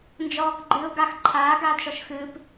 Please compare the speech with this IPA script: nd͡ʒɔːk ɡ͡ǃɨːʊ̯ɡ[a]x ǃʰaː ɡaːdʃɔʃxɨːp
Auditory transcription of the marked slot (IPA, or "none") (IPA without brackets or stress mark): a